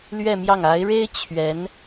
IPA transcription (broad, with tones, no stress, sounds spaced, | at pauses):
l ɥ ɛ˥˧ m j ɑ˥˩ ŋ a˧˥ ɪ̯ ɻ e˥ ɪ̯ t͡ɕʰ ɥ ɛ˧˥ n